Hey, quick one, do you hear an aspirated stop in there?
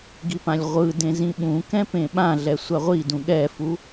no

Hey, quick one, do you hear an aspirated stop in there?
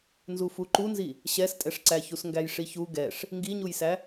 no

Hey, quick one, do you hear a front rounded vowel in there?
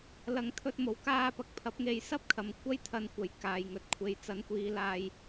no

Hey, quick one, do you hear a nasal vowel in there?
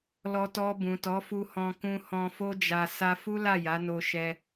yes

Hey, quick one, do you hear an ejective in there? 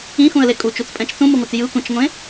yes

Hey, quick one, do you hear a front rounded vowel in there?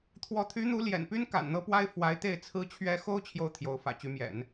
yes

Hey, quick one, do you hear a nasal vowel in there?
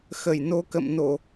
no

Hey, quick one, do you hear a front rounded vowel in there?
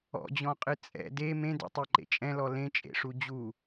no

